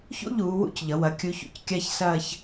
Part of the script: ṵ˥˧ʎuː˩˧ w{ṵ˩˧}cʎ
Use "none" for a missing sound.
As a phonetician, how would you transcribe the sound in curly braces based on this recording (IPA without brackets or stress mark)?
ṵ˥˧